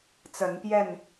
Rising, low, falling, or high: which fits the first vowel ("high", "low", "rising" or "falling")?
rising